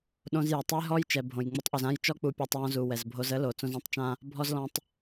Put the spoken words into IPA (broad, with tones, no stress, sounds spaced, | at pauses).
ɗ õ˧ z j ɛ˨ tˤ ə˦ j ɦ ɔ˧ j t͡ʃ ɛ˨ bʱ õ˨ j ŋ͡m y˧ tˤ ʔ y˨ z ã˦ j t͡ʃ ɔ˦ k͡p u˧ pʲ ɔ˧ tˤ j ɔ̃˧ z u˨ w ɛ˨ z bʱ o˧ z ə˦ l o˨ t͡s õ˧ z ɔ̃˦ tˤ t͡ʃ ã˦ | bʱ ɔ˦ z l ɔ̃˦ tˤ